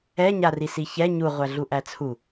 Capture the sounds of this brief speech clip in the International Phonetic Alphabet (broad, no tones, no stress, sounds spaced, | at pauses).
ɛ ɲ a r i s i ç ɛ ɲ u ʁʷ æ ɮ u ʔ æ t͡sʰ u